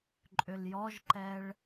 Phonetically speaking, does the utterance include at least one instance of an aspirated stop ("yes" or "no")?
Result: no